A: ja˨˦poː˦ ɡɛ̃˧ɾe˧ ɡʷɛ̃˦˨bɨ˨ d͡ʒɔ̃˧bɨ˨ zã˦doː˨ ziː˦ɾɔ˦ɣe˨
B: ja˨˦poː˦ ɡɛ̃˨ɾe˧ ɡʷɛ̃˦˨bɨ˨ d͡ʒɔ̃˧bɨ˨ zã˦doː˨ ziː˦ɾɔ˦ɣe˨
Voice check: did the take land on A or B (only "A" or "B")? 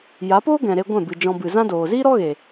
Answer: B